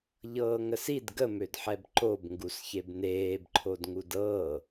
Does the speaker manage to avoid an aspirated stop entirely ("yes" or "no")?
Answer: no